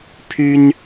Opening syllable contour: high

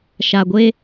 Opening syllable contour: low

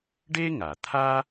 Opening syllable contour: high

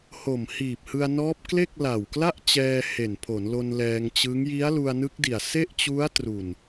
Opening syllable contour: low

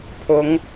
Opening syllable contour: rising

